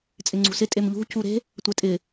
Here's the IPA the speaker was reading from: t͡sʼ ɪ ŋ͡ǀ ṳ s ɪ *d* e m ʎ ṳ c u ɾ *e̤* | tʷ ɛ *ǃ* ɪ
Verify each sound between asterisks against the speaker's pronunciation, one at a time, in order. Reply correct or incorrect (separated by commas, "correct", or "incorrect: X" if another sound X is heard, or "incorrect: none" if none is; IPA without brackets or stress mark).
incorrect: tʼ, correct, incorrect: tʼ